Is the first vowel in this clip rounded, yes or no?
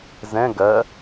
no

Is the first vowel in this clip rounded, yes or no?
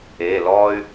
no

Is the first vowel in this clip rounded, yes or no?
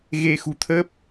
no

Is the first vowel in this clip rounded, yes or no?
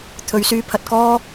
yes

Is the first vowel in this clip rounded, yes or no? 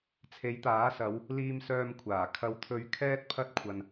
no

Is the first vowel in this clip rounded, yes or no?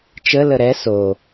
no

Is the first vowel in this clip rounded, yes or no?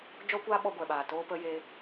yes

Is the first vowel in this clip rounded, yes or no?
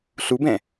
yes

